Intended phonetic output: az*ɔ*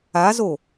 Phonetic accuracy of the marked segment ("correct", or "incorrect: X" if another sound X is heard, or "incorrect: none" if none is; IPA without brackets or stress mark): incorrect: o